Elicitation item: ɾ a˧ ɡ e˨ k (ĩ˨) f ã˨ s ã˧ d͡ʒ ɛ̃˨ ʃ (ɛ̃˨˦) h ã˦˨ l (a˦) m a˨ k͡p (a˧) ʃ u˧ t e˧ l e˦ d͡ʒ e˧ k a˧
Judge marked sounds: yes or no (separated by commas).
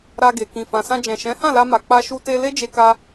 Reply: yes, yes, no, yes